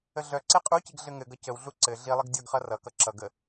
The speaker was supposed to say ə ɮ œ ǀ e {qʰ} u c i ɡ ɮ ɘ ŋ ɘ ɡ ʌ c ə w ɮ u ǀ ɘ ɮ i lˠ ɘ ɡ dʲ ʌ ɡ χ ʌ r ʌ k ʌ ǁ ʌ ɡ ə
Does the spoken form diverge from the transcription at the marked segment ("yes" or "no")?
yes